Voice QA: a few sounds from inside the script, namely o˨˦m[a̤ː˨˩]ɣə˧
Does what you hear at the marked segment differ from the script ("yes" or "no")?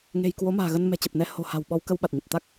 no